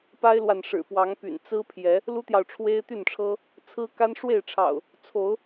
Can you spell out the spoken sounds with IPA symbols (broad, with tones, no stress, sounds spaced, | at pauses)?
p a˦ ɪ̯ l w a˨ n ʂ ɻ̩˨˩ p w ɑ˨˦ ŋ p y̰˨˩ n t͡s ɹ̩˦ pʰ j ɛ˨˦ | l u˦ t̪ j ɑ˨ ʊ̯ ʈ͡ʂʰ w e˦ ɪ̯ t̪ y˥˨ n ʈ͡ʂʰ ɤ˦ | t͡sʰ ɹ̩˦ k a˦ n ʂ w e˥˨ ɪ̯ ʈ͡ʂʰ ɑ̰˨˩ ʊ̯ | t͡sʰ o˨˦ ʊ̯